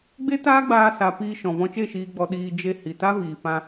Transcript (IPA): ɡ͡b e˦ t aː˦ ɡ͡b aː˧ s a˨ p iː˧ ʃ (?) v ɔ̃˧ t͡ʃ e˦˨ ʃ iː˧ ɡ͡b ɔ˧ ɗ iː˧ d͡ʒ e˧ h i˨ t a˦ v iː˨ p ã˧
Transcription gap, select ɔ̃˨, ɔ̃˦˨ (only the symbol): ɔ̃˨